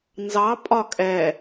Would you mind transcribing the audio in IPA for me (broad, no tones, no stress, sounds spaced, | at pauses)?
n z ɑ pʼ ɒ kʼ ɛ